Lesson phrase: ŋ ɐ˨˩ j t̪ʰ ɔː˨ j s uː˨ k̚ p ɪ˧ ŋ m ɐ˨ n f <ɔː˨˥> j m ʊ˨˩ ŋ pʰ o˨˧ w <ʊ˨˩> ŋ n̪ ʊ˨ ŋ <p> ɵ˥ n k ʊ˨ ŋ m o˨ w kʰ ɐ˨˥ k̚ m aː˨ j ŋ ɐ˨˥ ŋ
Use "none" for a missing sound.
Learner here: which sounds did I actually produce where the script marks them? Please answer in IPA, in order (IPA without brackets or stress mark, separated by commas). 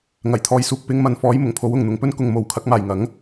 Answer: ɔː˨˥, ʊ˨, p